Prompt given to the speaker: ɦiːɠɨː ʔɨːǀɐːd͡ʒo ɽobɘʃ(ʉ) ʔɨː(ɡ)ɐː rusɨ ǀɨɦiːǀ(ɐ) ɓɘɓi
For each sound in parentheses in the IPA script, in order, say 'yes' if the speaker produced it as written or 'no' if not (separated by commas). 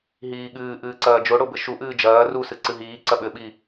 no, no, yes